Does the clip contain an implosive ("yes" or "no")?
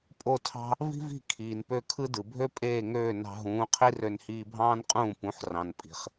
no